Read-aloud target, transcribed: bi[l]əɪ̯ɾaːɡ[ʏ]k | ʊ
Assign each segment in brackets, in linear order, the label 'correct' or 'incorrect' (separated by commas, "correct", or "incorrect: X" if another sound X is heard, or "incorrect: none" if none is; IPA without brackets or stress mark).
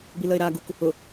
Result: correct, incorrect: u